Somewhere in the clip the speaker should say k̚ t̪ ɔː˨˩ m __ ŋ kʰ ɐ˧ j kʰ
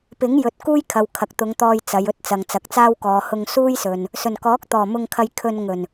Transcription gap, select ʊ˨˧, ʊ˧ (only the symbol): ʊ˧